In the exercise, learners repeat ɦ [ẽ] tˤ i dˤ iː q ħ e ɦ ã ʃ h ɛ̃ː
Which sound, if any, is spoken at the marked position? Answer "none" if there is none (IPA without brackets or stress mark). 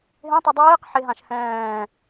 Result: ẽ